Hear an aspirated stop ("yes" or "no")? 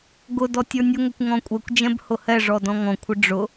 yes